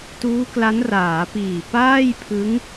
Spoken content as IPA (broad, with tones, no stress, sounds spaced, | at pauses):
t uː˦˥ k l a˦˥ n r aː˩˦ p iː˨˩ p aː˥˩ j pʰ ɯ˦˥ ŋ